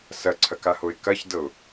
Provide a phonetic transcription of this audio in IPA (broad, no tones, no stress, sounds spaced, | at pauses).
s ɐ ǀʰ ɐ k a h o ɪ̯ k ɐ ç d ɤ ʊ̯